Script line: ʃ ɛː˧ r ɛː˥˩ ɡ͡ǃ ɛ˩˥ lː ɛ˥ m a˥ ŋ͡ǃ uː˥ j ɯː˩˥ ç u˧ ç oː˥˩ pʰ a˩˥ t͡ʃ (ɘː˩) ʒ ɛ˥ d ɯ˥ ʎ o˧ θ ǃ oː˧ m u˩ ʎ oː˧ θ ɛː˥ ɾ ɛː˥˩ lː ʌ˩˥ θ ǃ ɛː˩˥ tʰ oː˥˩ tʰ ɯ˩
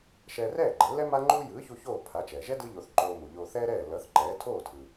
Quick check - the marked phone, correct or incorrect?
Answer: incorrect